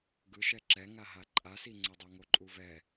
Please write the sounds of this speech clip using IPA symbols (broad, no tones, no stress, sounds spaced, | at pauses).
ɡ ɯ ʃ ɛ ǁ ɛ ŋ a ɦ a ǃʼ a s i ŋ͡ǀ ʌ dˤ o ŋ o ǃʼ u v ɛ